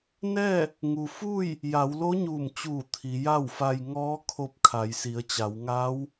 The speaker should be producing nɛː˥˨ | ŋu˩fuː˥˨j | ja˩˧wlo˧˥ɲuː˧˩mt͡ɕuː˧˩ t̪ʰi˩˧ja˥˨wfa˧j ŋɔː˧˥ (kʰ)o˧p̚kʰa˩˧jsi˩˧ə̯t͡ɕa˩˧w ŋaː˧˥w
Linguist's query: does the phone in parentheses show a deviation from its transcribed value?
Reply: no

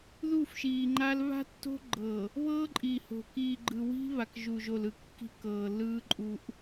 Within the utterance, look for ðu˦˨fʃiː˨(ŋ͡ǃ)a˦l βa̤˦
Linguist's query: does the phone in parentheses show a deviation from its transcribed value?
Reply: no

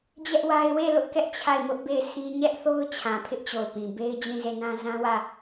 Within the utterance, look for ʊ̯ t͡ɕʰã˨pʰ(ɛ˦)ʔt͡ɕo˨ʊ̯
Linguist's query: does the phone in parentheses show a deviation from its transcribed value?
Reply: yes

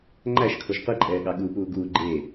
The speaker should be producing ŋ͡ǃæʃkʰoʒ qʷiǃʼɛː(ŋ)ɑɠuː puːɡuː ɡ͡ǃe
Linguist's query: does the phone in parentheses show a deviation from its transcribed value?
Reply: yes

